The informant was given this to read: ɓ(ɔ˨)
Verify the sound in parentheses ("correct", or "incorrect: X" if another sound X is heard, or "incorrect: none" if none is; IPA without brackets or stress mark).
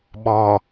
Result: correct